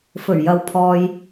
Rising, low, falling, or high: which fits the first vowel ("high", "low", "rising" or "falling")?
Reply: low